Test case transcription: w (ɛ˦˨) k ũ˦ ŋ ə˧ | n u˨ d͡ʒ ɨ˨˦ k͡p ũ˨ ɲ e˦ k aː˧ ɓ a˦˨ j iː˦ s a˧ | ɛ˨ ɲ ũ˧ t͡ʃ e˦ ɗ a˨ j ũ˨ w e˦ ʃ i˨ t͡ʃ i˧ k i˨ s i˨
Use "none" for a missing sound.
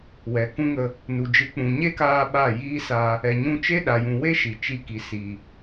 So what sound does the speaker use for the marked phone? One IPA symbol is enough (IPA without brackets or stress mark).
ɛ˨